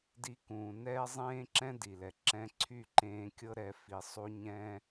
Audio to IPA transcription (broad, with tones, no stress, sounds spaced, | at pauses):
d i˧ k ũː˨ n ɛː˦ zˤ ẽː˦ ǁ ɛ̃˦ d i˨ l ɛ˨ ǁ ɛ̃˧ ǀʰ y˦˨ ǃ ẽː˧ kʲ ɤ˦ ɾ ɛ˧ f i˧ sˤ u˦ ɲ ɛ̃˦